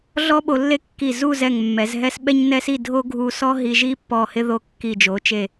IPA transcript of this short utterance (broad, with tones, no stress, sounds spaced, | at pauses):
ɮ ɔ˥ ɓ o˧ lː e˥˧ kː i˧˩ z u˥˧ z ɛ˧˩ ŋ mː ɛ˩˧ z ɦ ɛ˥ s ɓ ɛ˥ ɲ n ɛ˥ s i˥˧ dʱ o˥ ɡʱ u˧ s ɔ˥ ɦ i˧ ʒ i˥ pː ɔ˧˩ h ɪ˥ ð o˧ kː i˧˩ d͡ʒ o˩˧ t͡ʃ e˧˩